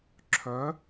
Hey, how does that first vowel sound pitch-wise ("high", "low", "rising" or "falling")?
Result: rising